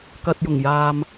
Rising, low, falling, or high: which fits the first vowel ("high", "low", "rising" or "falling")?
low